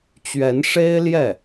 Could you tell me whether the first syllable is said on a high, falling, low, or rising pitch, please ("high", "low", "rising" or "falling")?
rising